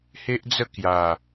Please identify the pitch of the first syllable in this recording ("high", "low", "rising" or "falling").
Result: high